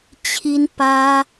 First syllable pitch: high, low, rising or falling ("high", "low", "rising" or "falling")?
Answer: high